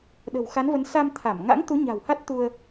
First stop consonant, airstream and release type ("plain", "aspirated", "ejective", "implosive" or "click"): implosive